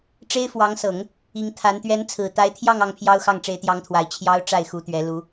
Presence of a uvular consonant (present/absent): absent